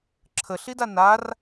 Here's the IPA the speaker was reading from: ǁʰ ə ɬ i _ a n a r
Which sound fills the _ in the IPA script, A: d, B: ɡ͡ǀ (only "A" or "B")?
A